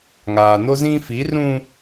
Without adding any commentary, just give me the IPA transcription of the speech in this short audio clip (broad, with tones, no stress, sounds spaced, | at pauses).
ŋ aː˨ n o˦ z ĩ˦ f i˨˦ r ũ˦